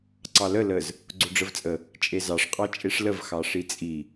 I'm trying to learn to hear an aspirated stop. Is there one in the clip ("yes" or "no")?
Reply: no